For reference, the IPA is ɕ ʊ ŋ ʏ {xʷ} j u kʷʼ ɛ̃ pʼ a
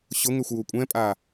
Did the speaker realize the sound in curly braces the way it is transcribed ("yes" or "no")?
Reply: yes